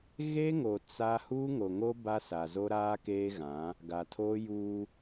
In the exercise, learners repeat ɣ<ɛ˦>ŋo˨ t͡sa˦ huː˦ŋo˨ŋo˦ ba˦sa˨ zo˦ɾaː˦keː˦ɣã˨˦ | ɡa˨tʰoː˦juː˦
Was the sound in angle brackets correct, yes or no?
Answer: no